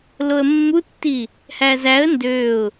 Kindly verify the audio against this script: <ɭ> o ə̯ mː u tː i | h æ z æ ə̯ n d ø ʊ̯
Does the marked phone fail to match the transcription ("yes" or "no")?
yes